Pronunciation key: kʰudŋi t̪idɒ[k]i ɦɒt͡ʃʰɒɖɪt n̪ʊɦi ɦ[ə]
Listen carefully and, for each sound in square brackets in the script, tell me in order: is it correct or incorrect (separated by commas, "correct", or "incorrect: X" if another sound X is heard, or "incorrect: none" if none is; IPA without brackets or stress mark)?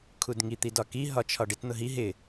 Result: correct, incorrect: ɪ